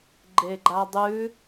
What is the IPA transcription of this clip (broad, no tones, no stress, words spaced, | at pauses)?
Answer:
ɡ͡ǃeɡ͡ǃadˤʉ